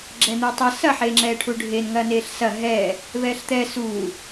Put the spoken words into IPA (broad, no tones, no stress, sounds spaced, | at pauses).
ɡ͡ǁ ɛ n̪ ɛː tˤ ɐ s ɐ ħ eː ŋ͡ǁ ɛː ʈʰ u ɖʱ e n ŋ ɐː n eː ɬ s ɐ ɦ ɛː | v ɛː ɬ t̪ ɛ s uː